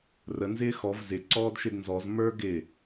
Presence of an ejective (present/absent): absent